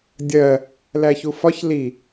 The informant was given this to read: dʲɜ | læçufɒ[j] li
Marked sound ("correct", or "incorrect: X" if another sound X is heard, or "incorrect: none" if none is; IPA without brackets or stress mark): incorrect: ç